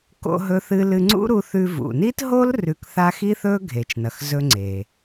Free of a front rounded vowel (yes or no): yes